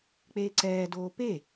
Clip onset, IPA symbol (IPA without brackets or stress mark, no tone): k͡p